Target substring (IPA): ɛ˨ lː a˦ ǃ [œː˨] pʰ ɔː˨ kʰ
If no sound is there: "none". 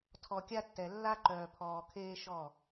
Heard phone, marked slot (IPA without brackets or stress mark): œː˨